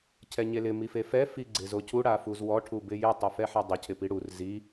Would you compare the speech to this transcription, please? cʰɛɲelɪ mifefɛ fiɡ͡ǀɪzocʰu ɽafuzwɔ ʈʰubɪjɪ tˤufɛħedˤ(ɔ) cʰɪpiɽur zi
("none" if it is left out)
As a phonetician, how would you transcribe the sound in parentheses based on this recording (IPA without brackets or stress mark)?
ʊ